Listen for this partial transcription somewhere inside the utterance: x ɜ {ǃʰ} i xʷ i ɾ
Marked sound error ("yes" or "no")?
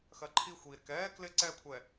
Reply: no